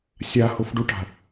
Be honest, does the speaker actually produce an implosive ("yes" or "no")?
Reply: no